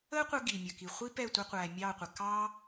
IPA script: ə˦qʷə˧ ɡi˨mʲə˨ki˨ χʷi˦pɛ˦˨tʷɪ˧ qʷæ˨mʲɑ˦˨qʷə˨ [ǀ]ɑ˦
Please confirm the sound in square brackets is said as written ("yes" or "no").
no